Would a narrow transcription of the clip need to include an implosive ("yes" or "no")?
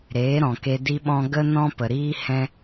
yes